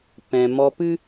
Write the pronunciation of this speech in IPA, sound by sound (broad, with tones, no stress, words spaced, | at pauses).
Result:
pɛ̃˨mɔ˧pɨ˦